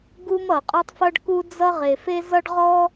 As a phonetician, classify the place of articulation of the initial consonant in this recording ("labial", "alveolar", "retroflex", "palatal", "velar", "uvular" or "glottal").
velar